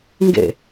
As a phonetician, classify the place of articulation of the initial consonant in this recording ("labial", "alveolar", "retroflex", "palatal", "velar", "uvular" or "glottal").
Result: velar